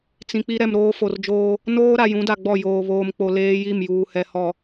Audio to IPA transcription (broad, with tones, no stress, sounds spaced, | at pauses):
t͡s ĩ˨ k͡p i˦ ɾ ɛ˨ m ɾ oː˦ f o˨ r d͡ʒ oː˦ | n oː˦ ɾ a˨ j ũ˨˦ d a˨ ɡ͡b ɔ˦˨ j oː˨ β oː˨ m k͡p o˨ l eː˦ j i˦˨ m j uː˨ h ɛ˨ h ɔ˨